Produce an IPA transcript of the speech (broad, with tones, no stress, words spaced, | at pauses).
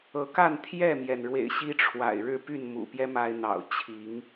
ɤ˨˦ ka˥˨n t̪ʰjɛ˥˨mjɛ˩nɻwḛ˨˩ɪ̯ ɕi˦ʈ͡ʂʰwa̰˨˩ɪ̯ ɻɻ̩˥˨py˥˨nmṵ˨˩pjɛ˦ ma˦ɪ̯ n̪ɑ̰˨˩ʊ̯t͡ɕʰi˨˦ŋ